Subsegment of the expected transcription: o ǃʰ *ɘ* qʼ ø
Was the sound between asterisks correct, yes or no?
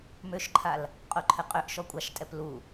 yes